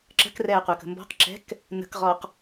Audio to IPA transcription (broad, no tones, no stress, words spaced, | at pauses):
ǁə̤krɛːqʷəːk ə̤mbɔ̤q ǁɛ̤k | nə̤kʁɔːq